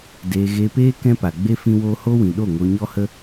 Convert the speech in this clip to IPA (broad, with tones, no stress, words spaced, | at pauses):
deː˧ ɣe˧peː˦ kɛ̃˦pa˨ ɡ͡be˦ fĩ˦woː˦ ho˦wĩ˨ɗo˦˨ ŋo˧ɲɔ˦hə˦